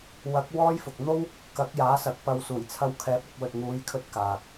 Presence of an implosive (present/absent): absent